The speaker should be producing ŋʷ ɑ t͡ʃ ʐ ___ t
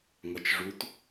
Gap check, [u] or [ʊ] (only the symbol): u